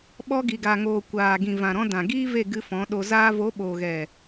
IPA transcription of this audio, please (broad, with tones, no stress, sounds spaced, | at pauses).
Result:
ɓ ɔ˧ ɡ i˨ ɡ a˨ ŋ oː˨ kʷ aː˨ ɡ ĩ˨ v ã˨ ɾ ɔ̃˧ d ã˨ ɡ iː˦ v e˦˨ ɡ ɨ˧ f ɔ̃˨˦ ɗ o˧ z aː˦ v o˨˦ ɓ oː˨ ɣ ɛ˨